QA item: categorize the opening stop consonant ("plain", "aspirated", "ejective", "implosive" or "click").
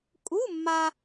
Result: ejective